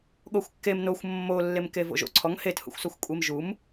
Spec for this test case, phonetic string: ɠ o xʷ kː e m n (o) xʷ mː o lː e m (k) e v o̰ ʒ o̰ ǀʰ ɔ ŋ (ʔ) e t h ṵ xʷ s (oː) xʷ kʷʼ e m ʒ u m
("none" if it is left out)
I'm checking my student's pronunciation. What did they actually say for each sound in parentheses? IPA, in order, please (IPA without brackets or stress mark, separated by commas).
o, k, h, o